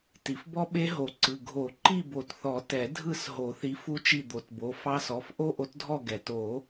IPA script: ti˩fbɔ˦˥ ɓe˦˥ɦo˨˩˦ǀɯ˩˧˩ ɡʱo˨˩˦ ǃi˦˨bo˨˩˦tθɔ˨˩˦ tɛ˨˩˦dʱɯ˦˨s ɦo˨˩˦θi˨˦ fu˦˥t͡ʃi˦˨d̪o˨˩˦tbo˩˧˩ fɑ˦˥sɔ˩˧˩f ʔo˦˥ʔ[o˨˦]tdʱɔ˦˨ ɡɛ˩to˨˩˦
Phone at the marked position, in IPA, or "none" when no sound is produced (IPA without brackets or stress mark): o˨˦